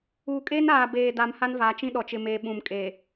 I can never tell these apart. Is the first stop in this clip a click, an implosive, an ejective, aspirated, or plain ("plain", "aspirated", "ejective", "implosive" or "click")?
ejective